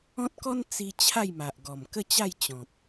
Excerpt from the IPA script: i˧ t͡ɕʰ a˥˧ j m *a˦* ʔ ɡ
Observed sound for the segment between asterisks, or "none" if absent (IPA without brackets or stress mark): a˨